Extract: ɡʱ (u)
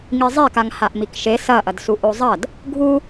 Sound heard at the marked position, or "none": u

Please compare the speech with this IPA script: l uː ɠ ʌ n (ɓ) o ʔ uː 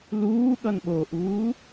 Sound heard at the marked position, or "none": ɓ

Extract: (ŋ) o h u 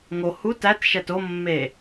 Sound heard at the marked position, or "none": ŋ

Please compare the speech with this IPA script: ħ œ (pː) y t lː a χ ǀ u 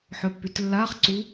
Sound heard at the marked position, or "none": pː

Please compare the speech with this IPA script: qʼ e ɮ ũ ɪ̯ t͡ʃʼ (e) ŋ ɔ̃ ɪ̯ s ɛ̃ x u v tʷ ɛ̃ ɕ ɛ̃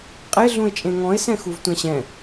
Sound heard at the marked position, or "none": ẽ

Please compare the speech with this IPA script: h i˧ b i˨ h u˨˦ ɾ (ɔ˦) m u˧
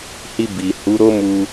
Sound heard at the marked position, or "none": o˦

